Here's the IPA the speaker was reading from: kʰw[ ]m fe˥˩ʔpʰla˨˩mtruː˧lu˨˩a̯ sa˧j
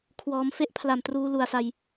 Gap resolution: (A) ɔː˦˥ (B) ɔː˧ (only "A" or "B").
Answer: A